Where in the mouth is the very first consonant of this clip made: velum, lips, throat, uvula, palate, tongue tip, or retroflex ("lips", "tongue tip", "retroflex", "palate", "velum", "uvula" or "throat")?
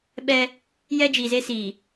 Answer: lips